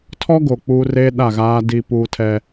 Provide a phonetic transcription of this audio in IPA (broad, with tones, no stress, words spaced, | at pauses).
tʰɔ˦ɡo˨ k͡puː˦reː˦ ɗa˦˨ɣaː˦ di˦puː˦tʰɛ˦